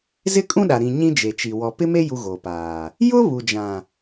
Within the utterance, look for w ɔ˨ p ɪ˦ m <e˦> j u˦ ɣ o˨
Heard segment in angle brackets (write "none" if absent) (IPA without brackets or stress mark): e˦